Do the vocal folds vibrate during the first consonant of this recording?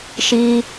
no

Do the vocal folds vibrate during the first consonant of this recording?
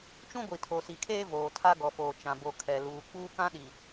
no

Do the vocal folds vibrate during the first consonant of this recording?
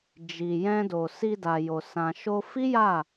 yes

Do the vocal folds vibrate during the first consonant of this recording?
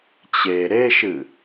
no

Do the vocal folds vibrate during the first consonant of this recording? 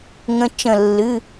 yes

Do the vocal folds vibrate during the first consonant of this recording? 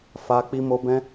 no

